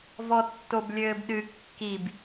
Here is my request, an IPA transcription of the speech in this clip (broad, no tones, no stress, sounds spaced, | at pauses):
v ɔ tː o b lʲ ɘː b ɗ ɨ kː i b